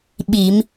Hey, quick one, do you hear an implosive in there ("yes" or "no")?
yes